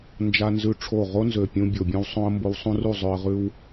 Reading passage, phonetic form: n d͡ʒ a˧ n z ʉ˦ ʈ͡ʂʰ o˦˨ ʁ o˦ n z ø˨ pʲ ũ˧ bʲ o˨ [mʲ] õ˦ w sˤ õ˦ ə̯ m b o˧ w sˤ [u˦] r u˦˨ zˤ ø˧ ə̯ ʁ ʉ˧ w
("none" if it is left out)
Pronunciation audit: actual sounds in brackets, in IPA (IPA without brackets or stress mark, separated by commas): bʲ, ũ˦